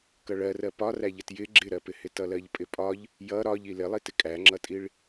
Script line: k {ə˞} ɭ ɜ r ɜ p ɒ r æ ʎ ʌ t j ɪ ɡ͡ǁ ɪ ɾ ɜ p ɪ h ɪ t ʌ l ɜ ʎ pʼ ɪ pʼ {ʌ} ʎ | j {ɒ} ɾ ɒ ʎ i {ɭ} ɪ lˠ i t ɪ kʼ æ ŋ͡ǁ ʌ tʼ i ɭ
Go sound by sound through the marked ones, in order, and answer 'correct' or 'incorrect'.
incorrect: ʌ, incorrect: ɒ, incorrect: ʌ, incorrect: l

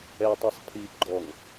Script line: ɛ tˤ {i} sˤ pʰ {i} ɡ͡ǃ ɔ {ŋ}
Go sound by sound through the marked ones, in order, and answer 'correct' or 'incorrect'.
correct, correct, correct

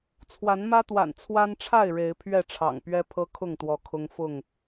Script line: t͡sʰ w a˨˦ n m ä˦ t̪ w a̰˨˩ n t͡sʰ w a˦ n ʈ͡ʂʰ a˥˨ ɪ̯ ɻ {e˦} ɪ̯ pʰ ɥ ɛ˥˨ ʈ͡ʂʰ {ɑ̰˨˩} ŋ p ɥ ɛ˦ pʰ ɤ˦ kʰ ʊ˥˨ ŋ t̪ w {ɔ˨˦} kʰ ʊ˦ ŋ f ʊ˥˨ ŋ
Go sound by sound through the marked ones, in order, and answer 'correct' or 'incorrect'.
incorrect: e˨˦, correct, correct

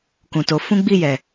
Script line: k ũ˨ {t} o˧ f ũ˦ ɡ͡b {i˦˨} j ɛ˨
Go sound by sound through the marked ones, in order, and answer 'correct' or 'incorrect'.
correct, correct

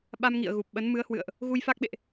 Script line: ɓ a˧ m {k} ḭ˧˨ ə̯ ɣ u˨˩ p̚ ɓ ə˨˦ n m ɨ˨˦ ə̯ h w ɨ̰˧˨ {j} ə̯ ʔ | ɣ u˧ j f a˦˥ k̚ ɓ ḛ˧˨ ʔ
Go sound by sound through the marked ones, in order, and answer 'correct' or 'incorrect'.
incorrect: ŋ, incorrect: none

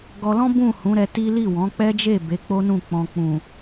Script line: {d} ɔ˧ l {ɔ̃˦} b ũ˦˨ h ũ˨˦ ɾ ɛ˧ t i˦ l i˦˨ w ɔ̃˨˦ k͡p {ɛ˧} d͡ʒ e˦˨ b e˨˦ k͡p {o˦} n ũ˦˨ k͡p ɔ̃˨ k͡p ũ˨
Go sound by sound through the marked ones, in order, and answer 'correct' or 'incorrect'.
incorrect: ɡ, correct, incorrect: ɛ˦, correct

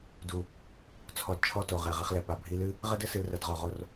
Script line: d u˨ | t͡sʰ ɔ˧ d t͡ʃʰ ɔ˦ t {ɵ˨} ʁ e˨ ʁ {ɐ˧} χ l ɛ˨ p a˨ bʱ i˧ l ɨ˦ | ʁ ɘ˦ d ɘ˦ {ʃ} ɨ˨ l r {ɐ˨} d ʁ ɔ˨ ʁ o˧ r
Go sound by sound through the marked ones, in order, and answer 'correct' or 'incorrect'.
incorrect: o˨, correct, incorrect: s, correct

